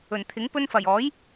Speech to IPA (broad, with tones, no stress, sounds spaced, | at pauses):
ɵ˨˩ n t̪ʰ ɪ˨˥ ŋ p ɵ˧ n f ɐ˨˩ j ɔː˨˥ j